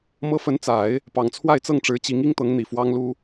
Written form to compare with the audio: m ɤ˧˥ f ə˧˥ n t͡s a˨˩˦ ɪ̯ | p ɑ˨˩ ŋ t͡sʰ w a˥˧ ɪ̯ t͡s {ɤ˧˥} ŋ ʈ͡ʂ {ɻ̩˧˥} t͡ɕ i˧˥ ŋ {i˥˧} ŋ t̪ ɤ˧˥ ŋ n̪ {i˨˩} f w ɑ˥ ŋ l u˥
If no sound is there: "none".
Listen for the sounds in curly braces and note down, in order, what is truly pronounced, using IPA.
ɤ˥˩, ɻ̩˧˥, i˥, i˨˩

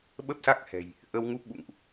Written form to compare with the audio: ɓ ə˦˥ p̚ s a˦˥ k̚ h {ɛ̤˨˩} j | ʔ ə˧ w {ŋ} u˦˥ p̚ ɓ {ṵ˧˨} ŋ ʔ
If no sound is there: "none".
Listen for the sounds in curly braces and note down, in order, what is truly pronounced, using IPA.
ɛ̤˨˩, ŋ, ṵ˧˨

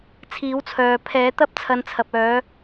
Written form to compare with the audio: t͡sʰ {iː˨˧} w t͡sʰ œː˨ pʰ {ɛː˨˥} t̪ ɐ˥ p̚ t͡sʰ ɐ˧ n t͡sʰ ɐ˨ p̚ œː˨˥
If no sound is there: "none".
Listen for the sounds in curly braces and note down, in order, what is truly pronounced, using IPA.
iː˨˥, ɛː˨˥

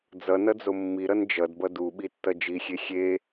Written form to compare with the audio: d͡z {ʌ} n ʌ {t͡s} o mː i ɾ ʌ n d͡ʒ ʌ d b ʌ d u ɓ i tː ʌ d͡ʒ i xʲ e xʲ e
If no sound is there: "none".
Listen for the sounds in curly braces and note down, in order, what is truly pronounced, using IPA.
ʌ, d͡z

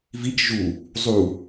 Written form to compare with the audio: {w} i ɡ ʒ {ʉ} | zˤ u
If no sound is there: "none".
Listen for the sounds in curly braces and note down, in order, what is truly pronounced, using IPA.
v, u

